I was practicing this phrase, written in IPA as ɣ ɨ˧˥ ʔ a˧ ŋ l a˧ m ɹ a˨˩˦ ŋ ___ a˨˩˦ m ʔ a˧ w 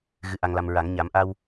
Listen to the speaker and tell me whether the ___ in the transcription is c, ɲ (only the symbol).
ɲ